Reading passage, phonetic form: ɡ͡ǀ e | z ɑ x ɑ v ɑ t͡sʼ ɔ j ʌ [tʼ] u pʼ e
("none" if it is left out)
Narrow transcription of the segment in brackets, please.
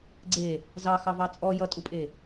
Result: tʼ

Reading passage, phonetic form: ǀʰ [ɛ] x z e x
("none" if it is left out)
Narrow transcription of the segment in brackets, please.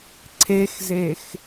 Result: e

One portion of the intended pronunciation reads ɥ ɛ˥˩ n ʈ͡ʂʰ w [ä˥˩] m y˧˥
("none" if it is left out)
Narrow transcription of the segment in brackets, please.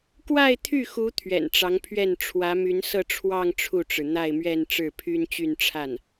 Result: ä˧˥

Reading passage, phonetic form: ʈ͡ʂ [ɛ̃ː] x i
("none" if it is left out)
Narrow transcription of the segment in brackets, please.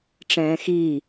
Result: ɛ̃ː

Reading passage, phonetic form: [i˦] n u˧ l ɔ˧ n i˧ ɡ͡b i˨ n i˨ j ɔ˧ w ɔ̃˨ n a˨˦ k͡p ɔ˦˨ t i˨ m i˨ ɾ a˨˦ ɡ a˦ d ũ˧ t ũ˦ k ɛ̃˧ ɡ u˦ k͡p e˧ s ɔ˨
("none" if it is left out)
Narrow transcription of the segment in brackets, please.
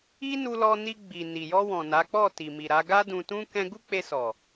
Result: i˦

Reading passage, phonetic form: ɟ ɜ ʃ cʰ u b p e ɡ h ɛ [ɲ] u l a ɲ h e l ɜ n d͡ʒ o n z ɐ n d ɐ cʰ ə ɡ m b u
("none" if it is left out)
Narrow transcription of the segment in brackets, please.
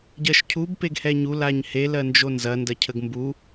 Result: ɲ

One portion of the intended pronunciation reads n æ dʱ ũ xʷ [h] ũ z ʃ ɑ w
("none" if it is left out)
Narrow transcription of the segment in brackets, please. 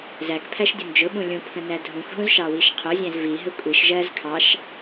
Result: ɦ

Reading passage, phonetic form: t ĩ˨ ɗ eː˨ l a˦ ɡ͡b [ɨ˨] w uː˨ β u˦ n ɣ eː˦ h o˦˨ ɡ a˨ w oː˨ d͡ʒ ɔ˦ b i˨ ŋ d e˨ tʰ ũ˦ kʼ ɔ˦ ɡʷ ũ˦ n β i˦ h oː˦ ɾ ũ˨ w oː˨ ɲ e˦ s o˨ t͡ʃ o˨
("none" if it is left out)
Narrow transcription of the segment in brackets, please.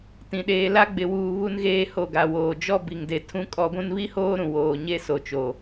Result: ɪ˨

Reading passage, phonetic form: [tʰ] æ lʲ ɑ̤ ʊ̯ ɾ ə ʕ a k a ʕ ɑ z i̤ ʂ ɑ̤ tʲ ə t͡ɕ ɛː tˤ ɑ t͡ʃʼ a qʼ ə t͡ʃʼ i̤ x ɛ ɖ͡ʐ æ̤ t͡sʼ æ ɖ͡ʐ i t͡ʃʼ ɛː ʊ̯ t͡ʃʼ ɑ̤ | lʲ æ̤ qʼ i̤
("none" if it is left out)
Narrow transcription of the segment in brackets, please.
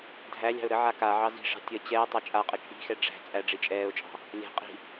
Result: dʱ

